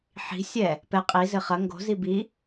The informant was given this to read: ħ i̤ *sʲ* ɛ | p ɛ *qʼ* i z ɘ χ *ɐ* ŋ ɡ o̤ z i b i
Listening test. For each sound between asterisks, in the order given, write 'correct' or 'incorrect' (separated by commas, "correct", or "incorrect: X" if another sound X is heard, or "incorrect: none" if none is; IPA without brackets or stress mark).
correct, correct, correct